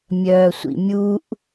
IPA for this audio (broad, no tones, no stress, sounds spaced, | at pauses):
mʲ œː sʷ ḭ mʲ u ʔ